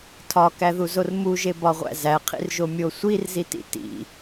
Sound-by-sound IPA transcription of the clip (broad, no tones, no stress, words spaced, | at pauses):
tʰɒkæðuzor muʒebɒʁʷæ̰ zæqʰḭrʒomʲo sʷirzitḭ tḭ